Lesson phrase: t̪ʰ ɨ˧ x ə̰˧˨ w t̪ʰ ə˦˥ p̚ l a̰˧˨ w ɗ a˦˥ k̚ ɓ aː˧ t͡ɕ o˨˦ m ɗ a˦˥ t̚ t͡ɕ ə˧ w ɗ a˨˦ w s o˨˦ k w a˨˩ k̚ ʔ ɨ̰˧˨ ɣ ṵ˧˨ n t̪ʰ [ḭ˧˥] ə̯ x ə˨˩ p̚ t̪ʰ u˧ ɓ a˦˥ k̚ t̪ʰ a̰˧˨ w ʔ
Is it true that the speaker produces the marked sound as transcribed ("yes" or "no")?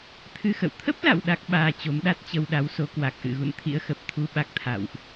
yes